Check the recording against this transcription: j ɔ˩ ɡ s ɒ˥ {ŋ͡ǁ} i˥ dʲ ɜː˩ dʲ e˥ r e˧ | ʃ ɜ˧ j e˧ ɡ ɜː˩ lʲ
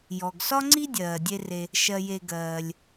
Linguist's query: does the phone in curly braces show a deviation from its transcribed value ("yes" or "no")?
yes